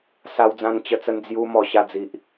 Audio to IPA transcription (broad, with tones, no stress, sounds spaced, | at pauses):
s a˧ w d͡z ã˧ n t͡ɕ ə˧ t͡s ə˧ n d͡z j u˧ m ɔ˨˩ ɕ a˧ d͡z i˨ ʔ